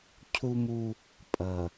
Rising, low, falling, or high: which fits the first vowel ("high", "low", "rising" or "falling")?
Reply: high